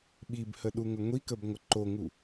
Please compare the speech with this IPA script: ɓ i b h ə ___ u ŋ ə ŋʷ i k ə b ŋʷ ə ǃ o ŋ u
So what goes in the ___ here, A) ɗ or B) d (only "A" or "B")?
A